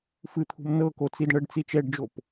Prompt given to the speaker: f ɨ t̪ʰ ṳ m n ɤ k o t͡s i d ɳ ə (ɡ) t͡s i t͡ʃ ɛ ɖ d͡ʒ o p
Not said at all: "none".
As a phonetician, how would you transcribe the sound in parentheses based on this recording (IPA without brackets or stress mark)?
ɖ